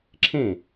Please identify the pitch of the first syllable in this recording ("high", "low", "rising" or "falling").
falling